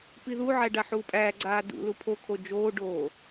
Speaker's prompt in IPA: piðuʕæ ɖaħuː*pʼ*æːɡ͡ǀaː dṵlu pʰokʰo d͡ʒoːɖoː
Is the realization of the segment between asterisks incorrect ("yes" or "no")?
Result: no